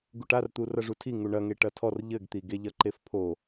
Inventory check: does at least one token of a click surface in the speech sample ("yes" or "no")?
yes